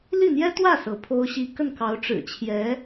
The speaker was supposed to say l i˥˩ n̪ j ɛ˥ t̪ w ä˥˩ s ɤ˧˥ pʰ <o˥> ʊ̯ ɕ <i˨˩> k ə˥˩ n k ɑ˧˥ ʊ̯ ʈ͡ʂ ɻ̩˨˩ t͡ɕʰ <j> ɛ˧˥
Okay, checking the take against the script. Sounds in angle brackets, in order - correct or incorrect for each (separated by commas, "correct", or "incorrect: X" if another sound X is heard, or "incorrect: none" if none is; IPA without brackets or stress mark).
correct, incorrect: i˥, correct